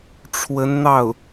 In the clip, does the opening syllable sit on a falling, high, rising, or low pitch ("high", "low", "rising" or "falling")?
rising